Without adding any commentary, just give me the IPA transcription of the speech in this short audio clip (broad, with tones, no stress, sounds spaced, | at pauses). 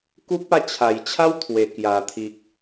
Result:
k u˦ p̚ a˥˧ t͡ɕʰ a˨˩ j t͡ɕʰ a˦ w t̪ʰ w e˨˩ k j a˨˩ t̪ʰ i˨ k̚